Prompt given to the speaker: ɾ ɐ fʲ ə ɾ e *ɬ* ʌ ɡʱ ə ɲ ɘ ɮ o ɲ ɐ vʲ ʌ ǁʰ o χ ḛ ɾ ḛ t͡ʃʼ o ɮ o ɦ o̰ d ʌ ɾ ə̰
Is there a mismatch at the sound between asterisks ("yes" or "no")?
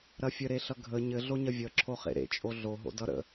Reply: no